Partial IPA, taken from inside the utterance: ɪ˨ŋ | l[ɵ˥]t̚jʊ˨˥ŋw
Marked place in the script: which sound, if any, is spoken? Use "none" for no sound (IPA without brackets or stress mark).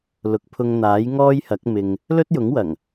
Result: ɵ˥